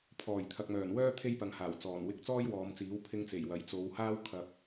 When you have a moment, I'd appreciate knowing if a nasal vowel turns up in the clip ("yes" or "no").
no